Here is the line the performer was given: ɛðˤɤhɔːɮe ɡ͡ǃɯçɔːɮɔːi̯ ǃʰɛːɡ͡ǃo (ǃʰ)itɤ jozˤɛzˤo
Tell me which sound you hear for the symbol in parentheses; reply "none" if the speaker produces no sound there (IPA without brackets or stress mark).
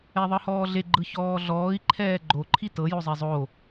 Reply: ǃʰ